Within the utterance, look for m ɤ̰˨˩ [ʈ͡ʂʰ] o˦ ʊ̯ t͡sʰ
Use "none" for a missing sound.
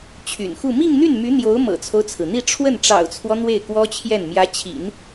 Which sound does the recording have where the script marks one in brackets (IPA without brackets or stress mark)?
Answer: t͡sʰ